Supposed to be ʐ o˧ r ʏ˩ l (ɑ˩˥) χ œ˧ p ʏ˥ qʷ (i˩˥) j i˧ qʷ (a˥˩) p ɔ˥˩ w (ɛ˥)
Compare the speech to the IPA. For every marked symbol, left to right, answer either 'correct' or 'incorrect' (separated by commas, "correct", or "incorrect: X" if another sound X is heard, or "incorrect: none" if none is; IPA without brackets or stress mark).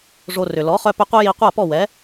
incorrect: ɔ˩˥, incorrect: i˥, correct, incorrect: ɛ˩˥